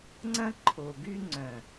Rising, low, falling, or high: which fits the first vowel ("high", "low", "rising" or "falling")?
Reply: high